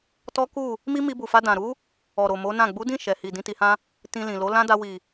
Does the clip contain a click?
no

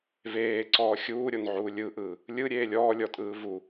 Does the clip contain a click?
yes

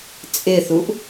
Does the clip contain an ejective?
yes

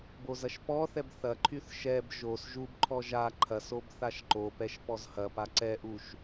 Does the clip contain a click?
yes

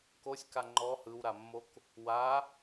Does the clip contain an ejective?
no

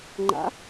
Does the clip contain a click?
yes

